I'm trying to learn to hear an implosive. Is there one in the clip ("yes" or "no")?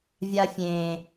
no